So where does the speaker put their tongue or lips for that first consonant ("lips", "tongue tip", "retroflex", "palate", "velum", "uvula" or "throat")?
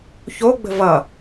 palate